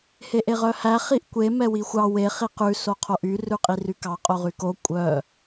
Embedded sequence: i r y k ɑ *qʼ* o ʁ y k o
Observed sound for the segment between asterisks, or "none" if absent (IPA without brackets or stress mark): qʼ